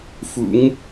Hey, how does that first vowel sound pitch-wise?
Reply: rising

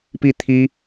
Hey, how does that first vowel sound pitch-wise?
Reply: falling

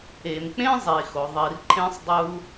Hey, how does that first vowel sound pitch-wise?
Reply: low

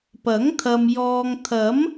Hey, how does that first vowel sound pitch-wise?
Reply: rising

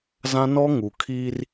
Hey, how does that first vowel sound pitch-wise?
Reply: high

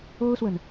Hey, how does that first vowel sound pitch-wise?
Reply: high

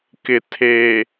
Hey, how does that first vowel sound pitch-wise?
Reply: low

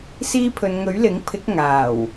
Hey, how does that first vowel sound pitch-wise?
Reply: high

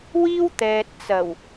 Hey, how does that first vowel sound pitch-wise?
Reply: high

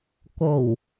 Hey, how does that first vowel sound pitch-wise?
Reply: low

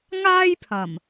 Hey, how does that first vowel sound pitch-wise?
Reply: high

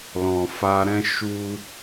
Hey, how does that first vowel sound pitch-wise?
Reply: low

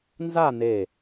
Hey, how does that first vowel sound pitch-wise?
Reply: falling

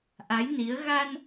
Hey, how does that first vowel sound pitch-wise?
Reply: rising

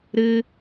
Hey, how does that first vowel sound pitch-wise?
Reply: high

